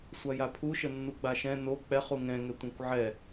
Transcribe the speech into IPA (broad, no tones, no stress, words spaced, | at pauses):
sʷajapʰuʃə nːuɡ͡baʃɛ̃ no k͡pɛχ uŋɛ̃ŋɛ tʷãkʷʕɛ